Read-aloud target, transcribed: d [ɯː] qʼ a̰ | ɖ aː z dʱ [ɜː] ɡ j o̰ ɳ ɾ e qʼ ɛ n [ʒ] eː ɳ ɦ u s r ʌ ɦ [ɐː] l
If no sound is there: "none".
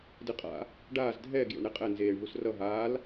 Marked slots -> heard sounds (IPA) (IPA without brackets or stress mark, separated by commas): ɯ, ɛː, z, aː